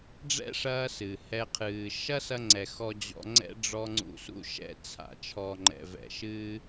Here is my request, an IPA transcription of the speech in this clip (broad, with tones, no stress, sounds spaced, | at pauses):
ɖ͡ʐ ɛ̰˦ ʂ ɐː˧ s ɨ˨ h ɛ˧ qʰ ɨː˨ ʃ ɐ˦ s ɐ˧ ŋ͡ǀ ɛ˨ x ɔ˧ d͡ʑ ɔ̰˧ ŋ͡ǀ ɛ̰˦ ɖ͡ʐ ɔ˧ ŋ͡ǀ ṵ˧ s ṵ˦ ʃ ɛ̰˧ t͡sʰ a̰˨ t͡ʃʰ ɔ˨ ŋ͡ǃ ɛ̰˨ v ɛ̰˨ ʃ ɨː˧